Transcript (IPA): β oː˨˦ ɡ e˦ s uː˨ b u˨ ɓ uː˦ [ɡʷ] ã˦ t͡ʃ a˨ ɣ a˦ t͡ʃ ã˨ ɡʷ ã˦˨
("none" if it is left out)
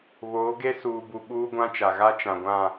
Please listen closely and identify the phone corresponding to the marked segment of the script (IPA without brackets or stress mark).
ɡʷ